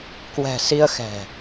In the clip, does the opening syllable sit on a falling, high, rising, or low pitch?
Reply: low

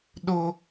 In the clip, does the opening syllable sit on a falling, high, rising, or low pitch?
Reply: high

